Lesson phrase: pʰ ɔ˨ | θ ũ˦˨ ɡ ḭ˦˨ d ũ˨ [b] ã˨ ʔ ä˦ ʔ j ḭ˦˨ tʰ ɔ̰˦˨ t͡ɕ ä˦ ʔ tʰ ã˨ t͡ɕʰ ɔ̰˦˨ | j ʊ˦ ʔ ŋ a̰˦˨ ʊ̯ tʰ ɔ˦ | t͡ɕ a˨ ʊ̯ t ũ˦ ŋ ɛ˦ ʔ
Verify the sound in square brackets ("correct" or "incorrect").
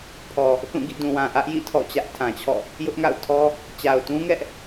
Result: incorrect